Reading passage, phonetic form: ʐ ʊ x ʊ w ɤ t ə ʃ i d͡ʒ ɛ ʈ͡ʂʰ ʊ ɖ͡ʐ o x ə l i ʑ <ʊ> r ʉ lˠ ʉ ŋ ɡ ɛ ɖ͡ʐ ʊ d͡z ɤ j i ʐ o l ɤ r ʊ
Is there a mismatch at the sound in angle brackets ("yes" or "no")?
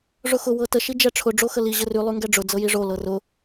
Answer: yes